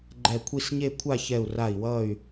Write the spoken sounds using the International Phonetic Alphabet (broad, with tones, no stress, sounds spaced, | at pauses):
ɡ͡ǃ ɛ˧˩ kʷʰ i˥˧ s ɲ e˥˧ kʷʰ a˥˧ ç ɛ˧˩ u̯ r a˧˩ i̯ w ʌ˧˩ y̯